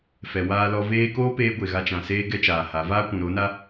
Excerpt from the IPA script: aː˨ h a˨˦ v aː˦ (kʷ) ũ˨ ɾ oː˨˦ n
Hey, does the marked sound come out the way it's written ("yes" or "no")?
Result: yes